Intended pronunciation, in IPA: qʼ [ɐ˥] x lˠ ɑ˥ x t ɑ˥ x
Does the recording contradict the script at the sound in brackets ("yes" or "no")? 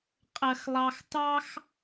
no